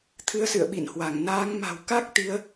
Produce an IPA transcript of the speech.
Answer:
t̪ʰ ɨ˨˦ ə̯ s ɨ̰˧˨ ə̯ ɓ ḭ˧˨ n h w a˧˩ ŋ n aː˨˦ ŋ m a̤˨˩ w k a˦˥ k̚ t̪ i˨˦ ə̯

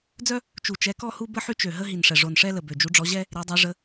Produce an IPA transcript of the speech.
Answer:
d͡z œ˦ | t͡ʃ u˨˩ t͡ʃ ɛ˨˦ k ɔ˦ h u˦ b ə˦ ħ y˦ t͡ʃ ø˨˩ ɦ ə˦ ɦ i˨˩ n ʂ ɛ˨˩ ʐ o˨˩ n ʂ ɛ˦ l ə˨˩ b ø˨˩ d͡ʒ u˨˦ ɖ͡ʐ ɔ˨˦ ʑ ɛ˦ | ɾ e˨˦ dˤ e˨˦ ʐ ə˨˦

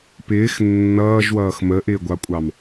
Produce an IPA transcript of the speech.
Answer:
p ɪː x nː ʌː ʒ w ʌː x m ə ʔ ɪː ɡʷ ɑ kʷʼ ɑ m

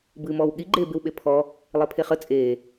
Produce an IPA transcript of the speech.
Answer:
b ɨː m ɔː w ɠ i ɡ͡ǃ eː b e w ɓ e pʰ ɔ | lˠ e pʰ e χ ə t͡sʼ eː

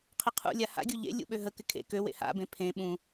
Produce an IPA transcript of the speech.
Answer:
qʰ ɪ qʰ ṵ lʲ a h a̰ ɡʲ u ʎ ḛ lʲ ṵ ɓ ø ɦ ə k ɪ kʰ ḛ k ø w ḛ h a̰ b ẽ pʰ ẽ ɓ ũ

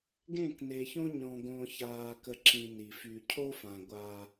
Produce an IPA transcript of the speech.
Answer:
ɡ ẽ˦˨ k n e˨ ç õ˦ ɲ ɔ̃˨ ɡ õ˨ ç aː˨ k ə˨ ǁ ĩ˨ n i˨ f y˨ cʰ o˦ f ã˨ ɡʷ a˦

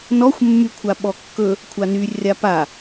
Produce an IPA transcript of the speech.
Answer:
n ɔ xʷ mː y kʷʰ a ɓ ɔ kː ɵ | kʷʰ a n y rʲ a p a

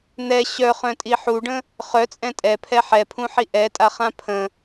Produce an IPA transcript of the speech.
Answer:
n̪ ɛ ɕ œ χ œ̃ tʼ i ħ u ɖ ə̃ | χ œ t͡sʼ ɛ̃ tʼ ɛ pʰ ɛ ħ ɛ pʰ ũ ħ i ʔ ɛ tʼ a χ ã pʰ ə̃

